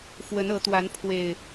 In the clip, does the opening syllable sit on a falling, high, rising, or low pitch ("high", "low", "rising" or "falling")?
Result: rising